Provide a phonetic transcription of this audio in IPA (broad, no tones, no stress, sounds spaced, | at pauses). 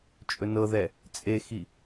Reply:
t͡ʃʼ ɵ n ɤ ð ɛ | t͡sʼ e x i